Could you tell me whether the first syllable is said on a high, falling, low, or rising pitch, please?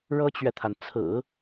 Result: high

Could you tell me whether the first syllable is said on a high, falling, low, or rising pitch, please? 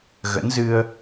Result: rising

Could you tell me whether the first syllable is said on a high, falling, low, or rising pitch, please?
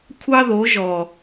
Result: high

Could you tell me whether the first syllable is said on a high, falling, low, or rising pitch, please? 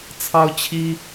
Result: high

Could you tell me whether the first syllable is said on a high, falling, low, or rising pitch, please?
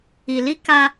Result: low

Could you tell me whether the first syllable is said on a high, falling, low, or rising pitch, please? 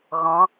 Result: rising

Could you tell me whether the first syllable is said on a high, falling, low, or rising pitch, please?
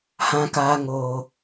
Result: high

